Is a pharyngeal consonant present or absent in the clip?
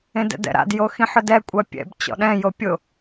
present